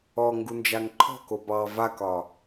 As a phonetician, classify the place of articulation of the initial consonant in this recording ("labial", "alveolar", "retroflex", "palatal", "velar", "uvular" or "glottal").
velar